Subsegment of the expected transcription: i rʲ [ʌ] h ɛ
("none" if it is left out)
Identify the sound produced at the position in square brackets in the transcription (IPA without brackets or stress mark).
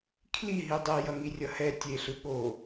ʌ